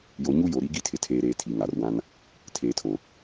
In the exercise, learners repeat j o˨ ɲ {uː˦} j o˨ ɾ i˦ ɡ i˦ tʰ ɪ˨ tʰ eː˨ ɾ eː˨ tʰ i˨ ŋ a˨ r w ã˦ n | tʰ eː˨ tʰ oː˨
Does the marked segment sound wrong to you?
yes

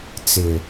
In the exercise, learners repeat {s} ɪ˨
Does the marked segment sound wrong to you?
yes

